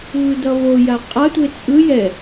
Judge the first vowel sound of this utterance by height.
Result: high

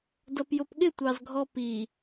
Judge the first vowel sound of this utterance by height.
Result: mid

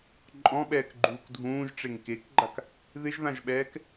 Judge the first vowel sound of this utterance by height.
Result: mid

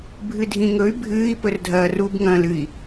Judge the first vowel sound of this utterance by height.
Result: high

